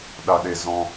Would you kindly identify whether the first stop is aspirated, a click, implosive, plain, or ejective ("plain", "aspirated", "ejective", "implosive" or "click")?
implosive